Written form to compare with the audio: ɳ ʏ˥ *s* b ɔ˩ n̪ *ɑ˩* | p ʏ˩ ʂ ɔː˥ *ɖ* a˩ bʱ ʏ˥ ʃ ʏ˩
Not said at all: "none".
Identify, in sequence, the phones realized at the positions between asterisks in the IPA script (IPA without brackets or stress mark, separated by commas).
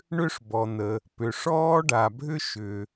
ʂ, ə˩, ɖ